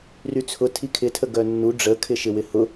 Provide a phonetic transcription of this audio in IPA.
r y t͡sʰ ʊ tʰ i kʰ ɪ tʰ ə ɡ œ nː u ɖ͡ʐ ə kʰ ɪ ʃ ɪ w ɪ h ʊ

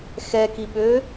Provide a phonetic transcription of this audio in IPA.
x ɛ k i ɓ ø

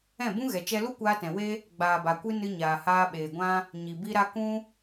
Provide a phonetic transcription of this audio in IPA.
ɛ̃˦˨ b ũ˦ ɣ ɛ˨ t͡ʃ ɛ˧ l u˦ kʷ aː˧ t ɛ̃˨ w e˦ | ɡ͡b aː˨ b a˨ kʷ ɨ˧ n ɨ˧ ɲ aː˨ h aː˧ ɓ eː˨ ɡʷ ã˦ | ɲ i˨ b i˧ ɾ a˧ k ũ˧

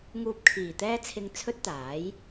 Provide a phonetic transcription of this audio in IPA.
ŋ uː˧ p̚ kʰ iː˨˩ t̪ ɛː˥ t͡sʰ ɪ˧ ŋ t͡sʰ ɵ˥ t̚ t̪ aː˨˥ j

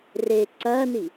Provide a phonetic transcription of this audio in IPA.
r e ǀ ɐː n i

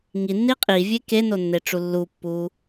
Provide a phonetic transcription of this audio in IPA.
ŋ i nː i qʼ i vʲ e k e n o nː e ʈ͡ʂ u lː u pː u

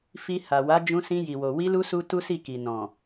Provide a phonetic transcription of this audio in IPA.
f i˧ h a˨ w a˨˦ d͡ʒ ũ˧ s ĩ˧ j i˨ w o˨ w i˧ l u˧ s u˦ t u˦ s i˦˨ k i˨ n ɔ̃˨

